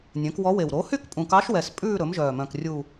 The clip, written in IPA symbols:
nʲœ̃˩˥kwɔ˧˥we˨˩w ɾo˩˥hy˥˧k pʼũ˨˩kɑ˧˥ʃwɛ˨˩s pʼʉː˥˧ ɾɵ˩˥mʒœː˨˩mœ̃˨˩k rʲu˨˩

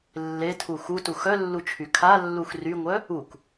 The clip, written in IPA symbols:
lːetʰu xutu xœlːut͡ʃʰy kʰalːux ryŋʷœ | uk

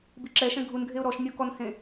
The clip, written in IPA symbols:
biǁɛʃɛ̃ ɡʱunɡʱeʊ̯ ɾɔʃ nʲokɔnhẽ

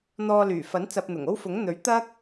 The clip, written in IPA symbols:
n̪ɔː˧lyː˨˩fɐ˨˥n t͡sɐ˧p̚n̪ʊ˨˩ŋ o˥wfʊ˨˥ŋn̪ɵ˨˥ɥ t̪ɐ˥k̚

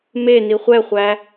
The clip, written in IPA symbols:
me niχʷɛχʷæ

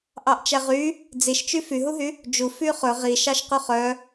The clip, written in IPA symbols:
ʔɑʔt͡ʃæʁy | d͡ziʃt͡ʃy fyɦuɦy | d͡ʒu fyχɵ ʁiʃɑʃqʉ χœ

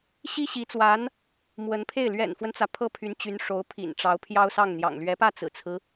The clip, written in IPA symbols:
ɕi˥ɕi˧˥t͡swa˧˥n | mwə˧˥npʰe˥˩ɪ̯ lɥɛ̰˨˩nfwə˦nt͡sä˩ pʰɤ˥pʰy˧˥nt͡ɕy˧˥n ʂo˧˥ʊ̯pʰḭ˨˩nʈ͡ʂɑ˧˥ʊ̯ pʰjɑ˥ʊ̯sɑ˥˩ŋn̪jɑ̰˨˩ŋ lɥɛ˧˥pä˥˩ t͡sɹ̩˨˩t͡sʰɹ̩˦

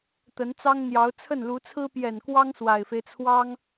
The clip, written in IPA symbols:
t̪ə˧˥nt͡sɑ˥ŋn̪jɑ˧˥ʊ̯ t͡sʰə˥˩nlu˧˥t͡sʰɹ̩˥ pjɛ˨˩nkwɑ˥ŋ swa˨˩ɪ̯fe˦ɪ̯t͡sʰwɑ˥ŋ

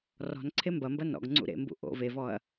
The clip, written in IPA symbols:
rɔ̤n ǀʰembɐmbɐ nɔ̰ɡŋ͡ǀṵ ɾḛmbṵ ʔo̰ vevɔɐ̯

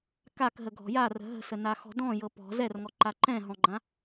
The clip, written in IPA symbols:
kakɦə ɡʱɔ̤jarə̤ ɦə̤sə naxɔ̤dɔ̃ jɤpɔ̤ zɛrŋɔǃa ǃɛ̃ɦɔ̃ɡ͡ǃã

